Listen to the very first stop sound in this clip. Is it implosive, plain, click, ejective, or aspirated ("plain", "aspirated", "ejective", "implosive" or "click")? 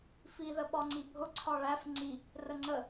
implosive